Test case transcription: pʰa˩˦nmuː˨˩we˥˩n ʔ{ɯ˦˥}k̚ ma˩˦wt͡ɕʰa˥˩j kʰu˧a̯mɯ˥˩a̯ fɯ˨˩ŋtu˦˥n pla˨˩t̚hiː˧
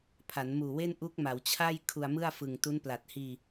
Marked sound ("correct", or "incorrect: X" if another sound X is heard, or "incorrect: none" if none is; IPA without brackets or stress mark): incorrect: u˦˥